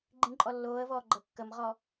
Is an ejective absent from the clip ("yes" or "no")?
no